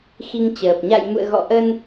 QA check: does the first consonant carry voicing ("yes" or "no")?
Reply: no